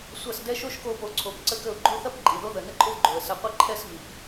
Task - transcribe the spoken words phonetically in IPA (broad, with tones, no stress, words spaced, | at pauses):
sʷɐ˦˨sdɛ˦ ʃo˦ʃko˧po˨˦ǀʰo˨˦p ǀə˦kə˦˨ʊ̯ ɡ͡ǃo˦θɐ˦p ǃʼi˨ðo˦ ðə˨ nə˦ǃʼo˦vɡ͡ǃo˨ə̯sɐ˧ qʷɐ˦ǃʰɛ˦svi˨p